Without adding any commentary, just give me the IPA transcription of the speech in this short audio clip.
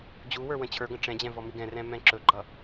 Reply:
d͡ʑ u w ə˞ w ə̃ t͡ɕʰ ə˞ ɡ ə̃ ʈ͡ʂ ɛ̃ d͡ʑ ɛ̃ v ɔ m i ɡ ɛ̃ r ɛ̃ m ɛ̃ ǁ ɵ ɡ͡ǃ ʌ

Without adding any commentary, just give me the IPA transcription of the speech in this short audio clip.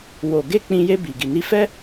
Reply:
w o˨ ɡ e˧ k͡p ĩ˧ j e˧ b i˨ ɡ i˨ n i˧ f ɛ˦

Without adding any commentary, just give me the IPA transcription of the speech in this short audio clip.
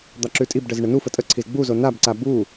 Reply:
d̪ ɑ ǁ ʉ tʼ i b ɖ ə z ɳ ə n u f ə tʼ ə ǀʰ i z ɡ͡b u z o n a b ǀ a b u

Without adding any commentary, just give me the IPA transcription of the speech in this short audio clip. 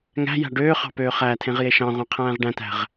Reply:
ŋ æ̤ j æ̤ ɖ øː χ ɑ̤ p øː χ æː tʰ ẽ ʁ j e ʃ ɑ̃ ʁʷ ẽ qʰ æ̃ː ʁ ɖ æ̃ t æ̤ ʁ

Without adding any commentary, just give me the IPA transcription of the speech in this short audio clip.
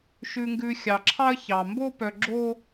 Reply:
ʃ ʉ˨ ŋ ɡ ʉ˨ xʲ ɑ˩ ǁʰ ɑ˦ ə̯ ç ɑ˩ m b o˦ p œ˨ ɡ͡ǁ o˦

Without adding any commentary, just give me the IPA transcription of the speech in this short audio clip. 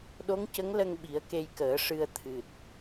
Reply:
ɗ o˧˥ ŋ c ə˧˥ ŋ l ə˧ ŋ ɓ i˨˩˦ ə̯ k e˧ j k əː˨˩˦ ʂ ɨ˧ ə̯ t̪ʰ ɨ˨˩ t̚

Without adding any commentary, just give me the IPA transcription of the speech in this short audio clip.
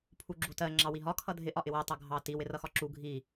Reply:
pʰ u ɡ͡ǁ u t ɜ ŋ͡ǁ ɑ w i ɦ ɒ kʰ ʌ dʱ ɪ ʔ ɒ ʔ ɪ w ɜ tˤ ʌ ɡʱ ɑ t i w ɪ r ʌ x ɒ ǁ u ɡʱ i

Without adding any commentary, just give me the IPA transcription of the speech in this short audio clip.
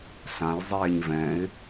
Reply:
ɬ ã j zˤ eː ɲ v ɛ̃ ɪ̯

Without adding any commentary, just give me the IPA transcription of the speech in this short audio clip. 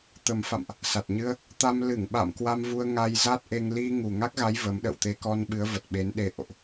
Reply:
t̪ ə˨˩ m f a̰˧˨ m ʔ | s a˨˩ t̚ ɲ ɨ˧ ə̯ | t̪ a˧ m l ɨ˧˩ ŋ ɓ a̰˧˨ m k w a˧ m v u˧ ə̯ ŋ a˧ j z a˦˥ t̚ ʔ e˧ ŋ l i˧ ŋ u˨˩ ŋ a˦˥ k̚ ɣ a˨˦ j v ə˨˦ m ɗ ə̰˧˨ w t̪ e˧ k ɔ˧ n ɓ ɨ˨˦ ə̯ v ə˨˩ t̚ ɓ e˨˦ n ɗ e˨˦ ʔ o̰˧˨ ʔ

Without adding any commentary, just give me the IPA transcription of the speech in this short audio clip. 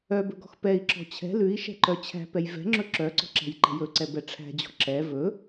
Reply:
œ b ɵ ɡ ɔ̤ x p ɛ i̯ ǁ ɔ̤ t͡ɕʰ ɛ̤ l ʉ i̯ ʃ ɛ̤ ǃ œ t͡ɕʰ æ̤ p ɛ j v ɛ̤ ŋ͡ǁ ɵ ǁ œ ǀ ɔ̤ ǁ æ̤ j ǃ ɛ̤ j ɵ ǀ ɛ b ɛ ʈ͡ʂʰ æ̤ d͡ʑ ɔ̤ ǁ ɛ v ɵ

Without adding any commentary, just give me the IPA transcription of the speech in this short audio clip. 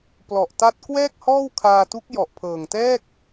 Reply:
p l ɔ˨˩ ʔ t a˦˥ t̚ k w ɛː˥˩ k̚ h ɔː˥˩ w kʰ aː˧ t u˦˥ k̚ j ɔ˨˩ ʔ pʰ ɤː˨˩ ŋ t ɛː˥˩ k̚

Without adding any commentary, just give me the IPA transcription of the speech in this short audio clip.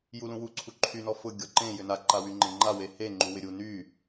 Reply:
j u l ũ w u ǀʰ u ǃʰ y n ɔ f ʊ ɡʲ ɔ ǃ ẽ j ʏ n a ǃ a w y ŋ͡ǃ ẽ ŋ͡ǃ a w e h e ŋ͡ǃ u w ɪ ɾʲ u n y

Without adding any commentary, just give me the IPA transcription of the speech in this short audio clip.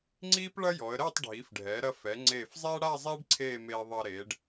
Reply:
ŋ͡ǀ iː˥ p ɭ ɐ˥ j ɔ˩˧ ə̯ ɾ ɛː˥˧ tˤ ɖʱ iː˩˧ f ɖʱ ɛː˩˧ ɾ ɐ˧ f ɛ˩˧ ŋ͡ǀ eː˧˩ f zˤ ɛː˥ ɽ a˥˧ zˤ eː˥ ɖ ǀʰ eː˥˧ m eː˧ ðˤ ɐ˧ ɾ eː˩˧ ɖ

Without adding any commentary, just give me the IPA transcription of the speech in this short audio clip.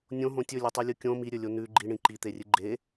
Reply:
nʲ õ ɦ õ tʲ ɵ lʲ ɨ tˤ ʉ lʲ u kʲ õ m i ɾʲ ɵ lʲ o n ʉ ɡ͡ǃ i ɳ ĩ ǃ i t̪ e rʲ ɨ ɡ͡ǃ e

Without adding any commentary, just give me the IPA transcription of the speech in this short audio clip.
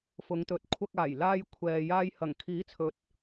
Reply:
f ʊ˨˧ ŋ t̪ ɵ˨˥ t̚ kʷʰ ɐ˧ k̚ aː˨˩ j l aː˧ j kʷʰ ɛː˨ j aː˧ j h ɐ˨˩ ŋ kʰ iː˨˥ t͡sʰ ɵ˨˥ t̚

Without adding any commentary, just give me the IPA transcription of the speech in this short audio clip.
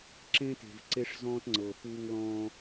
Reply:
ǁ ẽ˦ t e̤˨ v ǀ e˦ ʂ z ɔ̃˦ t ŋ͡ǀ ɤ˨ f u˦ ŋ l ɔ̃˦

